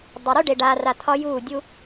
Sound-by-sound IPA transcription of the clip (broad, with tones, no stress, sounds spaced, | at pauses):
dˤ ɐ˨ ɾ u˦ ɖ e˨ ɖ aː˨ r a˨ tʰ ɒ˦ j uː˦˨ dʲ u˦